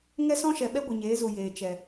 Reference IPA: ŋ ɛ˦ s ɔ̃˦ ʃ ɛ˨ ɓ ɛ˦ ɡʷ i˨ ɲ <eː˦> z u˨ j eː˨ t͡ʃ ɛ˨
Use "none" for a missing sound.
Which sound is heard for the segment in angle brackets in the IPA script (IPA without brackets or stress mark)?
eː˨˦